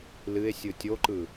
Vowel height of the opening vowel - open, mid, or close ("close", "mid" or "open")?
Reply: close